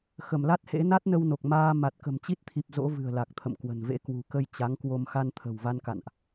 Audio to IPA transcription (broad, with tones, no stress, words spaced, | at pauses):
xə˧˩mla˦˥t̚hḛ˧˥ na˦˥t̚nə˧wno˨˩k̚ maː˧ ma˨˩t̚kə̤˨˩mt͡ɕi˦˥t̚t̪ʰi˨˩p̚ zo̰˧˥ vɨ̤˨˩ə̯la˨˩k̚ t̪ʰə̰˧˨mkwə̤˨˩nvḛ˧˥ kwṳ˨˩kə˧j t͡ɕa˨˦ŋkwo˧m xa˧nt̪ʰə̤˨˩wva˧nka̰˧˨nʔ